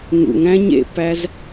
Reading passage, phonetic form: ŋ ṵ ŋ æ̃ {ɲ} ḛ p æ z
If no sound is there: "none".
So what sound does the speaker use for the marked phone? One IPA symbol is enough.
ɲ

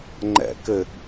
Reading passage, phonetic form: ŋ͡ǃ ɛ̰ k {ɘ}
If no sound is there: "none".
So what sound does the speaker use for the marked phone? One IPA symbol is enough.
ɘ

